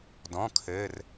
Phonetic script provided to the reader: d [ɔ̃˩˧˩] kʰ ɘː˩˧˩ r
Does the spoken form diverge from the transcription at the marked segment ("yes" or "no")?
no